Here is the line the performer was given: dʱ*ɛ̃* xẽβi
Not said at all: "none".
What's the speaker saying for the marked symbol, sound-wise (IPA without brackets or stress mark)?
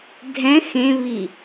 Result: ɛ̃